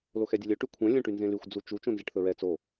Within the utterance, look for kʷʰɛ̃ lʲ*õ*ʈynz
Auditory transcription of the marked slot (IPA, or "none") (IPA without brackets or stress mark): õ